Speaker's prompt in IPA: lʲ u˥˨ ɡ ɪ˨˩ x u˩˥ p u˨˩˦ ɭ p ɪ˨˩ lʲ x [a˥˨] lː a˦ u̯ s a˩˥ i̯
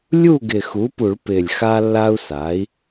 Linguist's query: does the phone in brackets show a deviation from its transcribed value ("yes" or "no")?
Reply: yes